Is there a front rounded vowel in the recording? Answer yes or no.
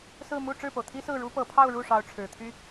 yes